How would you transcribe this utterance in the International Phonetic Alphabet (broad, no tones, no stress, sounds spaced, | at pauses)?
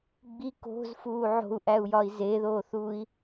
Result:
ɡ͡b i k o̤ z f uː ʕ o̤ u̯ ʔ æ u̯ j ɒ i̯ z e ð oː θ uː i̯